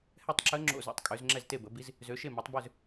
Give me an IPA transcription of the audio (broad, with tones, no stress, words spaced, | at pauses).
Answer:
hɛ˥˩tˤǁə˧˥ ŋ͡ǁo̰˥˩zo̰˥˩tˤkʼø˩˥z ŋ͡ǁɛ˥˩zte˥˩bə˩˥bi˧˥z | zø˩˥ʃe˥˩ mø˩˥tˤbø˥˩z